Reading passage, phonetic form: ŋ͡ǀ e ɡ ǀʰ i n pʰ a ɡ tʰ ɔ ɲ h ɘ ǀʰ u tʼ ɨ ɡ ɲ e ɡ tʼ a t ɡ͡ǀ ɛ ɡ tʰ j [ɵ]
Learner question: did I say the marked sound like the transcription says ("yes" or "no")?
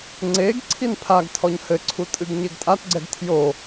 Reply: no